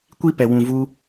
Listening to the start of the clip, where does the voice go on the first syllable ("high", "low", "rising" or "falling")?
high